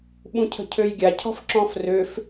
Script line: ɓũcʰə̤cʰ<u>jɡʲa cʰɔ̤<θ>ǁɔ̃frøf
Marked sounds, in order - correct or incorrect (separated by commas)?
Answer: incorrect, incorrect